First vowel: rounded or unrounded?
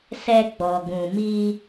unrounded